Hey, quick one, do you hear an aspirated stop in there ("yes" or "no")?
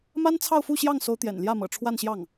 yes